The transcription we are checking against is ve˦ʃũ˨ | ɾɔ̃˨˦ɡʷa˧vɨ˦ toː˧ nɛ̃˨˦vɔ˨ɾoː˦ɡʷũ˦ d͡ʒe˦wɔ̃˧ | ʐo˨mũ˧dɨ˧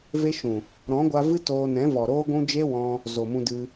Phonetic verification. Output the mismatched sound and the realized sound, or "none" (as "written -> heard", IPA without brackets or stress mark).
ʐ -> z